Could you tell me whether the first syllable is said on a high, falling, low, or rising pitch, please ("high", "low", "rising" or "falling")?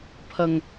low